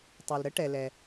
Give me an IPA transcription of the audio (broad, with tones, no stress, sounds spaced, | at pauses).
tˤ ø˩ l ɾ ə˥ ʈ ɛ˩ l ɛ˩